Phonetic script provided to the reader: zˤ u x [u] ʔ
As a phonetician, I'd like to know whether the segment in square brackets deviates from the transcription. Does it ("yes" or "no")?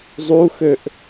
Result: yes